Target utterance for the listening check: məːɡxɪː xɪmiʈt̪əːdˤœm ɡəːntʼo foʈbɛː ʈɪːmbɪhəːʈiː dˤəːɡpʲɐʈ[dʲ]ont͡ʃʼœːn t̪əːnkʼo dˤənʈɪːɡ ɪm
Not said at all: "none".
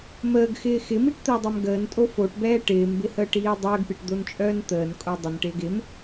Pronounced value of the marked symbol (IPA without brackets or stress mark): d̪